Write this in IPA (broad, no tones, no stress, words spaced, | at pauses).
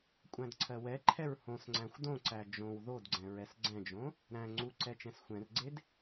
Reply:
kʷʼæ̃dǀʰɜwɛǃʰɛɹ hõsŋ͡ǀæ̃xʷ dõǀæ d͡ʒõw ðodɡ͡ǀɛ̃ ɹɛsɡ͡ǀɛ̃d͡ʒõ | ɾæ̃ ŋ͡ǀuǀɛ t͡ʃɛ̃sxʷɛ̃rɡ͡ǀed